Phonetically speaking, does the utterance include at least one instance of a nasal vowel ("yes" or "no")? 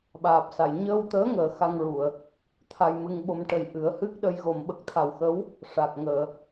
no